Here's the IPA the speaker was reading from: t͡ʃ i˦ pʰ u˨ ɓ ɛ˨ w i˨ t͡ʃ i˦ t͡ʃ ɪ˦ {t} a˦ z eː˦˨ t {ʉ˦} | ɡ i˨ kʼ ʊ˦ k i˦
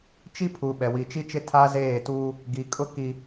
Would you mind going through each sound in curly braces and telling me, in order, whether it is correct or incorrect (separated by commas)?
incorrect, incorrect